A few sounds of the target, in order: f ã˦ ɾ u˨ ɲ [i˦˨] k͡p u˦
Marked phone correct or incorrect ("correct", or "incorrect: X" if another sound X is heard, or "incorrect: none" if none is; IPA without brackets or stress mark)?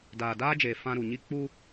correct